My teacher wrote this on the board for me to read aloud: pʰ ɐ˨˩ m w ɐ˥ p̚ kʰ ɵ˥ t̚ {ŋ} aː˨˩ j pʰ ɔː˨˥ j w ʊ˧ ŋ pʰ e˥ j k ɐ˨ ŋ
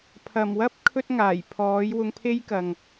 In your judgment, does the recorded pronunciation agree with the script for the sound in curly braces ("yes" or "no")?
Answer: yes